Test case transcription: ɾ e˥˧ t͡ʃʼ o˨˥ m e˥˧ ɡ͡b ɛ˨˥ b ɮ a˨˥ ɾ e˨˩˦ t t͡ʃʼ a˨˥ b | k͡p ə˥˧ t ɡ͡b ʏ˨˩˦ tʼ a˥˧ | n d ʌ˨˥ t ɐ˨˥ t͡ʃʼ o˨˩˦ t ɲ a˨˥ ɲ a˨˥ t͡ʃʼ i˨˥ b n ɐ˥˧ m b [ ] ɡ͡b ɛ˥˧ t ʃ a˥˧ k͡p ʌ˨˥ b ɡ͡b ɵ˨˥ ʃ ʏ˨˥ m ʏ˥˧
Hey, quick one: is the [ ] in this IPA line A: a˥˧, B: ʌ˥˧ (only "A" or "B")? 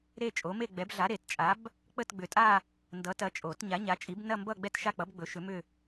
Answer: B